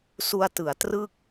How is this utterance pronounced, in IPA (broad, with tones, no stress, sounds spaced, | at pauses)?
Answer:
s u˧ a̯ t ɯ˩˦ a̯ t r ɯ˥˩ k̚